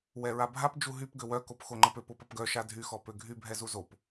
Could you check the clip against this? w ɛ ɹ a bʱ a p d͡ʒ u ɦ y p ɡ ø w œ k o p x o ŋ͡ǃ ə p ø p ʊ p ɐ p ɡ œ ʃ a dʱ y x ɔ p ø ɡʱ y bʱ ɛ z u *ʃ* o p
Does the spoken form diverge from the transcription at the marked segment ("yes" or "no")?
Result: yes